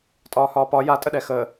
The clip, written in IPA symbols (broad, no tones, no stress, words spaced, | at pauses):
tʼɒːhɒːpɒ jatʼəɗɛ xəː